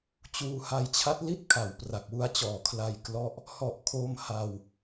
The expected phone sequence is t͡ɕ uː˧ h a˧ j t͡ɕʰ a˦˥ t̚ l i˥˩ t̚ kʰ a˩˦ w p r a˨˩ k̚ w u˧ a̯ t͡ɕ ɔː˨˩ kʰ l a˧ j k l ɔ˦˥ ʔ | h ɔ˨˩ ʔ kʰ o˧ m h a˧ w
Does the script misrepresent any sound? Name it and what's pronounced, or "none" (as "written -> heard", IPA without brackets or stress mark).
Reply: none